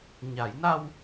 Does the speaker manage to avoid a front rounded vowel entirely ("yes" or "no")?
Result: yes